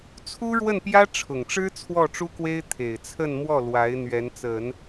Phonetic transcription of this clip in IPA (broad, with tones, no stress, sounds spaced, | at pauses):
t͡sʰ u˥ ɻ w ə˥˩ n p j ä˥ ʈ͡ʂʰ ʊ˨˩ ŋ ʈ͡ʂ ɻ̩˥ t͡sʰ w ɔ˥˩ ʈ͡ʂ u˥ k w e˥ ɪ̯ t̪ʰ e˨˩ ɪ̯ t͡sʰ ə˥˧ n m w ɔ˥˩ l w a˧˥ ɪ̯ n̪ ɥ ɛ˧˥ n t͡s ə˨˩˦ n